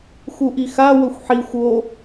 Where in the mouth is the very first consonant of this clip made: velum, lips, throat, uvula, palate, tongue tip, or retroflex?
velum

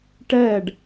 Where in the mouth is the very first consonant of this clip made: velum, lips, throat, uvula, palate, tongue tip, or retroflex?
retroflex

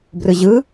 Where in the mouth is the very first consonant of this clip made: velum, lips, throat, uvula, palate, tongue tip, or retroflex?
lips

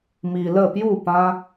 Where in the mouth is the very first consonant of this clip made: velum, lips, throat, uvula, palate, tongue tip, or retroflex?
lips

